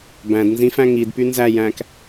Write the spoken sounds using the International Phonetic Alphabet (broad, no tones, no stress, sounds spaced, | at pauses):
b æ̃ d n z ĩ f æ̃ ŋ i d p y n z æ j æ̃ k